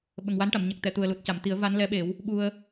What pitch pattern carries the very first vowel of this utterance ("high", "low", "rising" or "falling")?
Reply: low